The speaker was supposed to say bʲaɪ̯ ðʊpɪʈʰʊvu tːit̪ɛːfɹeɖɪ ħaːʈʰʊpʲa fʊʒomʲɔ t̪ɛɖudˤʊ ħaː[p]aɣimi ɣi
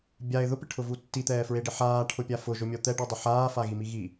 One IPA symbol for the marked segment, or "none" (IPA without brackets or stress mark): f